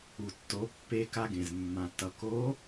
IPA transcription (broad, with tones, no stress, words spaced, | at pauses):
u˩tːo˩˧ pːe˧ ka˧ɡẽ˩zmːã˩tːʌ˩ ko˧˥